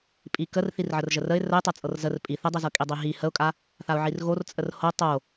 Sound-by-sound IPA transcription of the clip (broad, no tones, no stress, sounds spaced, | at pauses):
pʼ i k ə r θ i r ʕ ə r ʒ ə r ə ɪ̯ r ə ɪ̯ tˤ ɤ t͡sʼ ɤ r z ə r pʼ i θ ə dˤ i z ɤ kʼ i dˤ i ɦ i h ə ʊ̯ kʼ a | θ a ʊ̯ ʕ i r ɣ o r t͡sʼ ə r h o tˤ o